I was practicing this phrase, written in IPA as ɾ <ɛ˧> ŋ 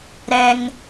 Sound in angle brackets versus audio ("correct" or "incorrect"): correct